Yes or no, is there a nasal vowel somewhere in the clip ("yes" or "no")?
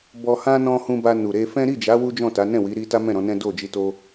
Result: yes